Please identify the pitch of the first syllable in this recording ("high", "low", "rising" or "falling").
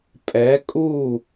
rising